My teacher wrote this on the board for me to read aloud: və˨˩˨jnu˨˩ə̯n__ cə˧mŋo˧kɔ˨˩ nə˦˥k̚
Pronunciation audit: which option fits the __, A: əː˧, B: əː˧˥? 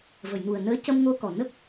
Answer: B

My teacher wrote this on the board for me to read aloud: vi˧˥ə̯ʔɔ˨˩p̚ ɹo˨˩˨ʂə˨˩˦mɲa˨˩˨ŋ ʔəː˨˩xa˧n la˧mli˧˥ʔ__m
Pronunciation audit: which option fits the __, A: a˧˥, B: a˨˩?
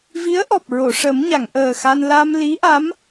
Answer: A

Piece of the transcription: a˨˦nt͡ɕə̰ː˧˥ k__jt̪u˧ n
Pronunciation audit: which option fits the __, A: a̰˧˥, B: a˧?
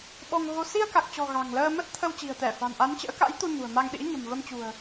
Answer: A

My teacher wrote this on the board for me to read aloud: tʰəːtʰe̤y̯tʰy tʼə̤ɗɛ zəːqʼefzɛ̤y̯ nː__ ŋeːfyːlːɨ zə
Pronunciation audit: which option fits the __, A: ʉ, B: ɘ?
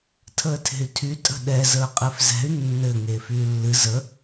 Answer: B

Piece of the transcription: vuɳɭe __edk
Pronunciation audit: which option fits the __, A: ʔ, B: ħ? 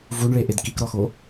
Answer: A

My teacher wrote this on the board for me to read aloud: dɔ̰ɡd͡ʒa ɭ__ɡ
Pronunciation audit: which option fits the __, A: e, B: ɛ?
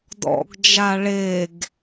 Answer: A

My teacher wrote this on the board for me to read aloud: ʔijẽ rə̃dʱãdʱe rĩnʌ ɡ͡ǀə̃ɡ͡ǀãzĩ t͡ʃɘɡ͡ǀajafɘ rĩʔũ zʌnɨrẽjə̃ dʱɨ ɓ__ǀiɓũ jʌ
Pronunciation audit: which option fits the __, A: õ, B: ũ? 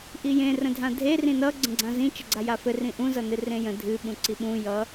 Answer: B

